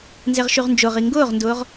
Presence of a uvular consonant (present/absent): present